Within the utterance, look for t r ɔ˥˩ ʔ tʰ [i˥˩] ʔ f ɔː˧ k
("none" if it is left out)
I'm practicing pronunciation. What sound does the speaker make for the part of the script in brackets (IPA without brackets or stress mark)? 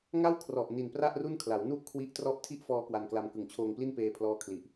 i˥˩